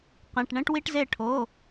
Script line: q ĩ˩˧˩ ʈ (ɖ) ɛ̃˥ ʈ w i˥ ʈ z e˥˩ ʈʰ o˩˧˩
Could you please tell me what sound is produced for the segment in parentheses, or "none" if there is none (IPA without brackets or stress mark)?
ɳ